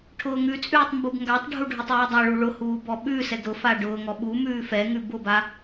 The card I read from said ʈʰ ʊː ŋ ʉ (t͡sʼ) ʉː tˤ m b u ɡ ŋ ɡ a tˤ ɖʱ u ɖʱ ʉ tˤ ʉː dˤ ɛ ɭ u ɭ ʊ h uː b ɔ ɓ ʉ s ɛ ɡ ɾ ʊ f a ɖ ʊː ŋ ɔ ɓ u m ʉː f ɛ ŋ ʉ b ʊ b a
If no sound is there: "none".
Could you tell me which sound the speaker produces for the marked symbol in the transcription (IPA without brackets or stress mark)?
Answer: t͡sʼ